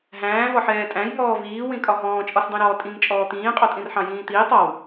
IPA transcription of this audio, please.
ɦ æ̃ː v ɒ ħ ɛː tʼ æ̃ j ŋ ɔː v iː w ĩ kʼ ɒ ɦ ɔ̃ː t͡ʃʼ ɔ s dˤ ĩ ɾ ɔː tʼ ĩ ŋ t͡ʃʼ ɔː t̪ ĩː qʼ ɔ tʼ ĩ r ħ ɑ̃ j ĩː t̪ iː tˤ ɒ w

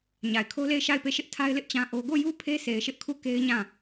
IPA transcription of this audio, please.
ɲ a˨ ɪ̯ kʰ o˦ l e˦˨ ɪ̯ ʃ a˦˨ ɪ̯ p e˦˨ ʃ ɪ˦ ʔ tʰ a˦ ɪ̯ l ɪ˦ ʔ t͡ɕ ã˦ ʔ o˦ ɡ o˦˨ j u˦ pʰ e˦ s e˨ ɪ̯ ʃ ɪ˦ ʔ kʰ u˦˨ k e˦ ɪ̯ ɲ ã˦˨

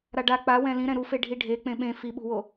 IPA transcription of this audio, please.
ɾ a ɖ a k͡p a w ɛ̃ l ĩ ɾ ɛ̃ ɾ u f e ɖʱ i ɖʱ e k͡p ẽ ɓ ẽ f i ɓ ṳ w o

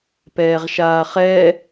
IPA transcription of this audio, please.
p ɛː ʁ ʃ aː χ ɛ

